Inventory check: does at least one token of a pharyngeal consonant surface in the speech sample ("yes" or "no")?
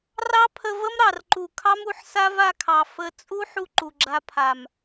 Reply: yes